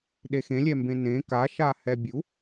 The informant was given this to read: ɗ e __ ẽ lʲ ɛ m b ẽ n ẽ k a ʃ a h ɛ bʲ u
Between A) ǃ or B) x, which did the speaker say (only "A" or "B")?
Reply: B